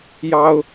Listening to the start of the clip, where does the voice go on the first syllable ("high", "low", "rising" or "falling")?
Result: high